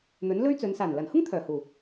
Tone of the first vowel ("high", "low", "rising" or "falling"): rising